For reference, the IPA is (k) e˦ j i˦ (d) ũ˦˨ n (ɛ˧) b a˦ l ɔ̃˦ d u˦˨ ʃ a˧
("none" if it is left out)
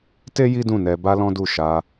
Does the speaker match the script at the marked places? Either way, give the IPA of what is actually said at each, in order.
t, d, ɛ˧

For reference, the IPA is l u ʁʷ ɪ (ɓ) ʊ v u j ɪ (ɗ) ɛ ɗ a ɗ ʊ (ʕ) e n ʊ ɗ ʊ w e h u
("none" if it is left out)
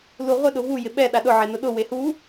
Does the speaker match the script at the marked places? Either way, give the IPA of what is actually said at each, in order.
ɗ, ɓ, ʕ

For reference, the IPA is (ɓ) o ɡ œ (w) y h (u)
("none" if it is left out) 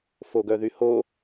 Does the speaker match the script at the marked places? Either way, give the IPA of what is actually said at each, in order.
f, ð, o

